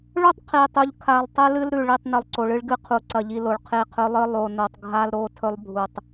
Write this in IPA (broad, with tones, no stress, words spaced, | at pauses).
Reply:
ɭɵ˦tˤqʰi˨tˤu˨ʎkʰa˨lˠ tˤɨ˦lɨ˦lɾʉ˨ɭi˦˨tˤ nɵ˨lˠǀo˨ɭɨ˦ɭ ɡɨ˦qʰu˨ ǀɐ˨ʎi˨ lo˨ɭqʰe˦qʰɵ˦lˠɨ˦ lˠo˨no˨tˤ ɡʱa˦lɾo˦˨ tʰɵ˦lˠbʱu˨tˤ